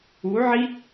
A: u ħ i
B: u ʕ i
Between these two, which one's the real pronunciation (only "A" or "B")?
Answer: B